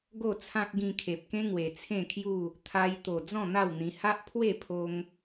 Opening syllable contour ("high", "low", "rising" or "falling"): falling